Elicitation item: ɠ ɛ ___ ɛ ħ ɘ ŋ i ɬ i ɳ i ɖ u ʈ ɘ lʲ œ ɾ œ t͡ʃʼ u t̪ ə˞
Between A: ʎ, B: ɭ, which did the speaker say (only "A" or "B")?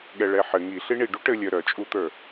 B